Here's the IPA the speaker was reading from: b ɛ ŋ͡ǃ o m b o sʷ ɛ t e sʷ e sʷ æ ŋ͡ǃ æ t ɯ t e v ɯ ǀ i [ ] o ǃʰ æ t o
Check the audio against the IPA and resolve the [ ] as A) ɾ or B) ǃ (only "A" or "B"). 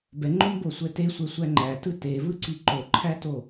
B